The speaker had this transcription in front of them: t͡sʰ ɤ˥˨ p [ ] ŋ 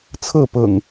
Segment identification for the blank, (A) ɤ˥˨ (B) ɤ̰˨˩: B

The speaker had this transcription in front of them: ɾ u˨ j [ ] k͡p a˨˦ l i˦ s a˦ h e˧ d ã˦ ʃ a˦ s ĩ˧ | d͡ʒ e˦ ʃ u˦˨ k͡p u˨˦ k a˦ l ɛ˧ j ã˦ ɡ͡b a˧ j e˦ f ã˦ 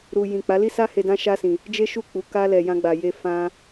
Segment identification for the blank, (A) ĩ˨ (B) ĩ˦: A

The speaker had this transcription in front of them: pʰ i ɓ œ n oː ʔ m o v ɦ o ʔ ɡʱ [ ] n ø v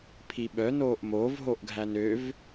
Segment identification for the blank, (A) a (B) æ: B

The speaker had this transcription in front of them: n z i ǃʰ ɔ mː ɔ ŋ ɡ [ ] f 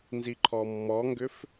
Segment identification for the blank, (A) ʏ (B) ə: A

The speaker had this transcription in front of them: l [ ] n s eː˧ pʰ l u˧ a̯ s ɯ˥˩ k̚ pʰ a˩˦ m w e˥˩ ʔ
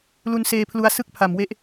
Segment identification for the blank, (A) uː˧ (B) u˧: B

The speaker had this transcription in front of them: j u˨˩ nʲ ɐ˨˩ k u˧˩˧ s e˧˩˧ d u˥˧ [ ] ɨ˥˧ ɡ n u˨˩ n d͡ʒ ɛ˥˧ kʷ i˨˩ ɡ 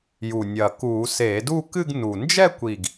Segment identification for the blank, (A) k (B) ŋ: A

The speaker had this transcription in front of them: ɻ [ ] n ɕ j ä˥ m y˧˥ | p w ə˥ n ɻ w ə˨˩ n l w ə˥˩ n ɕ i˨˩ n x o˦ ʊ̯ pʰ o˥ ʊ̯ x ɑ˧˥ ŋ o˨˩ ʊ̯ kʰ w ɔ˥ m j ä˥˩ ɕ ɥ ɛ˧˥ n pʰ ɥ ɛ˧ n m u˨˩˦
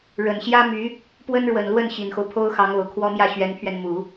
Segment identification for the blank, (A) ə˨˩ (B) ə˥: A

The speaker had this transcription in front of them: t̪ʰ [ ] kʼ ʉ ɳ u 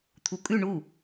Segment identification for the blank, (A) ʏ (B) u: B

